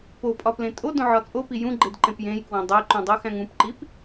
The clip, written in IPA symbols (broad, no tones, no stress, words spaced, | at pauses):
popʼɒ plẽtʼo dõʕɒt͡sʼopi jũɡ͡ǃedǃẽp jẽjkwõ dˤeǃũdˤuxæ̃ŋ ũpǃip